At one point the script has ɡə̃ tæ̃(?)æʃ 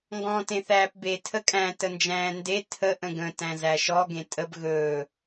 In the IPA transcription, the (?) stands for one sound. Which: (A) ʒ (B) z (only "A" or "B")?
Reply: B